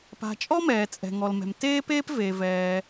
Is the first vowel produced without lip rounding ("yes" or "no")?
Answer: yes